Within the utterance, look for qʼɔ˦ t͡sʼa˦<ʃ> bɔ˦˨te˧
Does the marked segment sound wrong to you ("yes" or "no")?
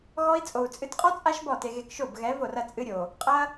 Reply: no